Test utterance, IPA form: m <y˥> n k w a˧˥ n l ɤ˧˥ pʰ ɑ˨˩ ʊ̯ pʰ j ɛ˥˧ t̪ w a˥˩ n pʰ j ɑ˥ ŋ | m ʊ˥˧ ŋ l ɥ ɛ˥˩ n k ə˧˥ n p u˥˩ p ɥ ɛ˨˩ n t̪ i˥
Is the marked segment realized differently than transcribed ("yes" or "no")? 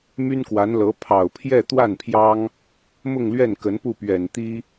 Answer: no